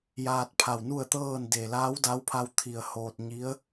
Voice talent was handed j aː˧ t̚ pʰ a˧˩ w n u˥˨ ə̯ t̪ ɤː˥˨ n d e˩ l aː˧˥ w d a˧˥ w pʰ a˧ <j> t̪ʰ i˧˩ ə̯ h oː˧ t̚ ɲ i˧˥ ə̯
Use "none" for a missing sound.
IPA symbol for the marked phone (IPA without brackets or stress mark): w